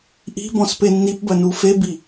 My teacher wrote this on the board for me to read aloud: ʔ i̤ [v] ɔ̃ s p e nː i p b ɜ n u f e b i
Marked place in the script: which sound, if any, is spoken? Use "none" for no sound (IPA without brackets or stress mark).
b